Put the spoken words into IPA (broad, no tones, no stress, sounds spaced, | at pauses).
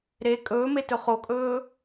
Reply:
ɾ e kʼ ɵː m e t ɵ χ o kʼ ɵː